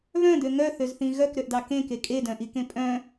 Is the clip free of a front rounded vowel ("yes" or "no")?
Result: no